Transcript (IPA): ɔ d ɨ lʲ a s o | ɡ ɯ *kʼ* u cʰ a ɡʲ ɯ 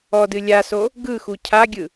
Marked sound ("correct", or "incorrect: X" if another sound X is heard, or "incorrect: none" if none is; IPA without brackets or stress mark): incorrect: x